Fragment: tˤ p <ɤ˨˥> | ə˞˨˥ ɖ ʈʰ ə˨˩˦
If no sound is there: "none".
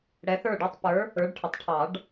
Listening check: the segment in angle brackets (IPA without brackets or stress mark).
ə˞˨˥